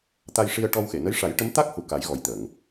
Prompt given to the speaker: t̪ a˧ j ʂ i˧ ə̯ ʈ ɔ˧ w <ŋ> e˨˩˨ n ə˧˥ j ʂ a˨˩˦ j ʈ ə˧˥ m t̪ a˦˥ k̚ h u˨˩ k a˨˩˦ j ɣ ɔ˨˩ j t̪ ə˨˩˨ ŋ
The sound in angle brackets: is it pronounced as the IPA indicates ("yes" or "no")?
no